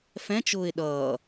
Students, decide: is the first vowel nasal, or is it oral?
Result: nasal